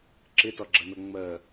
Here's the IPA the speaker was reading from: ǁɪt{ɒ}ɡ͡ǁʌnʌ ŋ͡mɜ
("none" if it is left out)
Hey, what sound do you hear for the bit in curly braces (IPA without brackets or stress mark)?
ɒ